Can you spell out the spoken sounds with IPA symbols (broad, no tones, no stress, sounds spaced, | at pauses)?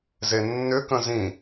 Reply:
z e nː ʏ k ə̃ z ĩ